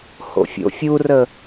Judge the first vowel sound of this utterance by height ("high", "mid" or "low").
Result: mid